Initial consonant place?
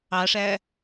retroflex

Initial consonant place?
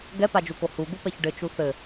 velar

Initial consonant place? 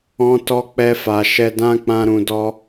alveolar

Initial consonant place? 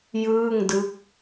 palatal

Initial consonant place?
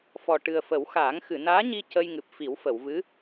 labial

